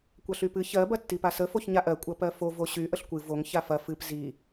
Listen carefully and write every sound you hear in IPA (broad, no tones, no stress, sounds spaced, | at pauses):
kʷ ɐ ɬ y p ɨ ç ɜ b ɐ tː i p a s ə f o ç ɲ a ʔ ɜ kʷʼ ɐ p ɜ f o v o ɕ y ʔ ə ɬ kʷ ɨ v o ŋ ç a f ɐ f ɨ p z i